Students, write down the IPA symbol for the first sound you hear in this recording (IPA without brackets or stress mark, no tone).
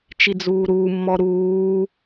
t͡ʃ